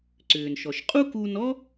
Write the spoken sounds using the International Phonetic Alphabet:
ǀ ʏː˩ n ʃ ɔ˩ ʃ qʼ u˥ k uː˧ n ɔ˥

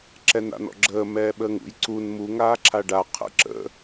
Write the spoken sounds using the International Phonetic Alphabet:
ǁ ɛ n a̰ n ɔ̰ ɡ͡ǁ əː m ɛː ɓ əː ŋ ṵ j ǀ u n m u ŋ aː ǁʰ a ɖ a qʰ ə̰ ǁ ə̰

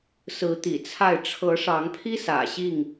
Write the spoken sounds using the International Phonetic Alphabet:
s ɹ̩˨˦ t̪ ḭ˨˩ t͡sʰ a˥˨ ɪ̯ ʈ͡ʂʰ ɤ˨˦ ʂ ɑ˨˦ ŋ pʰ i˦ s ä̰˨˩ ɕ i˥˨ ŋ

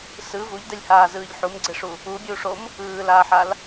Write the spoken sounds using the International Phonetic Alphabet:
s ɯ v u ʎ d ɛ lʲ h aː z ɯː ʎ ħ u m ɡ͡ǀ e ʂ u | u bʲ u ʂ o m | ɯː l aː ħ a l

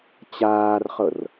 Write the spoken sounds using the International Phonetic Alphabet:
t͡ɕ aː r χ ɤ r

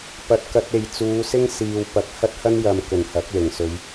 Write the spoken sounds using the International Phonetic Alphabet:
p ɐ˧ t̚ k ɐ˧ t̚ e˨ j t͡s uː˨˧ s ɪ˥ ŋ s iː˧ w p ɐ˧ k̚ h ɐ˥ t̚ h ɐ˥ n j ɐ˨ m k ɵ˨˩ n h ɐ˨˥ k̚ l ɪ˨˩ ŋ s ɵ˨˧ ɥ

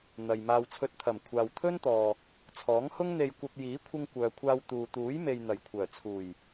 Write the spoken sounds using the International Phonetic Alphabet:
n̪ ɐ˨ j m aː˧ w t͡sʰ ɵ˧ t̚ t̪ʰ ɐ˨˩ m kʷʰ aː˨ w t̪ʰ ɵ˥ n t̪ ɔː˨ | t͡sʰ ɔː˨˥ ŋ h ʊ˥ ŋ n̪ e˧ j kʷ ɐ˧ p̚ j iː˨˥ kʷʰ ɪ˧ ŋ kʷ œː˨ kʷʰ aː˧ w t̪ uː˨ t̪ uː˨˥ j m e˨ j n̪ ɐ˨˩ j kʷʰ œː˨˩ t͡sʰ uː˨˩ j

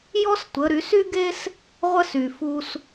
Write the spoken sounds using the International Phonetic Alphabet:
j ɔ˥ s tʷ ə˩˧ ɾ y˩˧ s y˥ ɡ e˥ s | ʁʷ ə˥ s y˩ f u˧ s

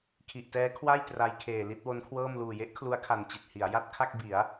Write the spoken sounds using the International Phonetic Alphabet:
kʰ i˨˩ ʔ t ɛː˦˥ kʰ w a˥˩ j t r a˧ j kʰ eː˨˩ l i˥˩ t̚ w o˦˥ n kʰ w ɤː˥˩ m l uː˨˩ j e˦˥ ʔ kʰ l u˦˥ a̯ kʰ a˨˩ n t͡ɕ i˨˩ t̚ h i˩˦ a̯ j a˥˩ t̚ kʰ a˥˩ k̚ b i˩˦ a̯

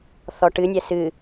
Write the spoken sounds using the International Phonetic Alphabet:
θ ɔ ʈ ɨ nʲ ɛ s ɨ

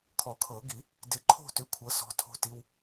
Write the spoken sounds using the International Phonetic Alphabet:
kʰ ɔ˨˩˦ kʰ ɤ˨˩˦ ɡ i˨˩˦ | d ɪ˨˩˦ ǃʰ o̤˦˨ t ʏ˩˥ kʷʰ ɤ˩˥ s ɔ̤˩˧˩ tʰ o̤˦˥ t i˧˥˧ w

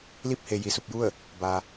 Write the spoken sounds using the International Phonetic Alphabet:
l i˥˨ p̚ h e˩ j i˩ s u˥˨ p̚ j u˥˨ ə̯ | b a˩

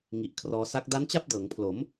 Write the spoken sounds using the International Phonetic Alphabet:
ŋ i˨˩ ʔ kʰ r ɔː˧ s a˦˥ k̚ d a˦˥ n t͡ɕ a˥˩ p̚ d ɤː˩˦ ŋ pʰ l o˩˦ m

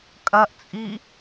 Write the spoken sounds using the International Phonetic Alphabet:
kʼ ɐ ʔ t͡sʼ i

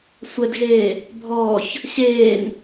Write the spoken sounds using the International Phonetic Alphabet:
sʷ ɛ d ɣ eː | bʱ ɔː ç | ɕ eː n

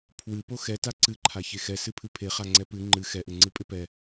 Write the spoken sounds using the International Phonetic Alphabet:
pʰ w ɨ p o x ɛ t a ǀ ɨ ǃʰ a ç e x ɛ s ɨ pʰ ɨ pʰ e χ a ŋ͡ǀ ɛ p ɨ ŋ͡ǃ ɨ x ɛ ʔ ɪ ŋ͡ǀ ɨ pʼ ɪ p ɛ

